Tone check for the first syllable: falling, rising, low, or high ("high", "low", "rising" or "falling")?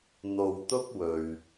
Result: low